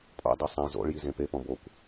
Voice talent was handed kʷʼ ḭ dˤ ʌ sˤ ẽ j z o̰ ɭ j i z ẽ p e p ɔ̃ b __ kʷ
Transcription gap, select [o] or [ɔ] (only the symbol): o